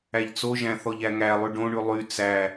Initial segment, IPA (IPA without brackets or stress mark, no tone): æ